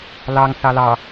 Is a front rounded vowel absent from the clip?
yes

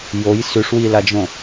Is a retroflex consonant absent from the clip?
no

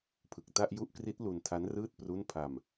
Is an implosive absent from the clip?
yes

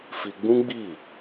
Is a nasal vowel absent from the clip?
no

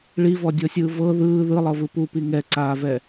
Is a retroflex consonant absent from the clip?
no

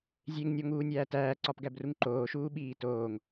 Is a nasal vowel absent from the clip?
yes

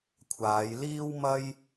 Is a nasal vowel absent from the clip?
yes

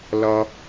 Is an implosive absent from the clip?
yes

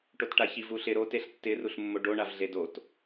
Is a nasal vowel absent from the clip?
yes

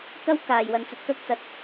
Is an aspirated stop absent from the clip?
yes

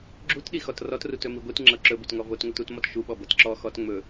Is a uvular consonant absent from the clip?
yes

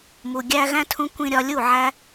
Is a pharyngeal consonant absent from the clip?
no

